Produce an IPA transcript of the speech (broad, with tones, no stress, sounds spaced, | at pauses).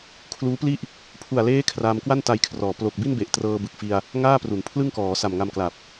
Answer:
kʰ l uː˦˥ p l i˥˩ ʔ | pʰ u˨˩ a̯ l eː˦˥ kʰ r aː˧ m k w a˥˩ n t a˧ j kʰ r ɔː˩˦ p l o˨˩ k̚ b i˥˩ n b e˨˩ ʔ t r ɤː˧ b ɯ˨˩ k̚ f i˧ a̯ | ŋ aː˥˩ p r u˩˦ n pʰ l ɯ˥˩ ŋ k ɔː˩˦ s a˨˩ m ŋ a˧ m k l a˨˩ p̚